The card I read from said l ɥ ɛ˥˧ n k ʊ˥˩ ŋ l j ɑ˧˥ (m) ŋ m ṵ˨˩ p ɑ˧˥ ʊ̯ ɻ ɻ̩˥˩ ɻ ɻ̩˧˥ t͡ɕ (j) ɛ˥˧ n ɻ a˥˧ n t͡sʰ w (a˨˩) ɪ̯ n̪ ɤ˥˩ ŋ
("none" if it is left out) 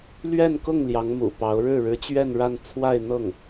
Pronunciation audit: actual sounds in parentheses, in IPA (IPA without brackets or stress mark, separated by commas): none, ɥ, a˥˧